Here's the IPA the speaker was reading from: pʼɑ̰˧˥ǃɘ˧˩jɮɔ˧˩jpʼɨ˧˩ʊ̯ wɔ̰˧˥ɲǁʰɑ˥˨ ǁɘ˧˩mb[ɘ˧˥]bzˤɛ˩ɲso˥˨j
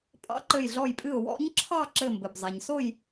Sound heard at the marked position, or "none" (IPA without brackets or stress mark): ɘ˩